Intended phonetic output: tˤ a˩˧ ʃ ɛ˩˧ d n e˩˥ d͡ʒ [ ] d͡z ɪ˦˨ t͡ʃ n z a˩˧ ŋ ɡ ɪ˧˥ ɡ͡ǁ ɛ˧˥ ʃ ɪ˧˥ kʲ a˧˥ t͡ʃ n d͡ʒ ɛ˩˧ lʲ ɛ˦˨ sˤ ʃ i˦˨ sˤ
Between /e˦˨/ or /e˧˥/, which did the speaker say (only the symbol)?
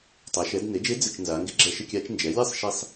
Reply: e˧˥